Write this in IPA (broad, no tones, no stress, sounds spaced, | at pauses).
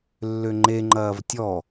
lː ʏ ŋ͡ǃ e ŋ͡ǃ ɐː v tʲ ɔ